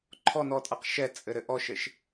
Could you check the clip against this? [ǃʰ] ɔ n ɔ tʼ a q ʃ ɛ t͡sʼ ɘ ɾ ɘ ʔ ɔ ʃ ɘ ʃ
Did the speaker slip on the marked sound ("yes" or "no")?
no